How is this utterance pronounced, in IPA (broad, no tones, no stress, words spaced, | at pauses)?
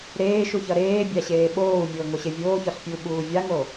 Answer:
ɾeːʃuçʌ ɾeːbʲaɕeː ɓoːu̯mʲoːŋoɕe vʲoːçɒɬpʲuɓuː vʲaŋo